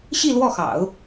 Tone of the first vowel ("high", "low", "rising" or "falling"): falling